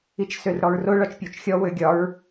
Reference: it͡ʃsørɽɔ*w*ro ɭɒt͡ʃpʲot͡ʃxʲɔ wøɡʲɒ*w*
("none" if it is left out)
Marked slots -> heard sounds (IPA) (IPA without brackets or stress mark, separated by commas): ɹ, ɹ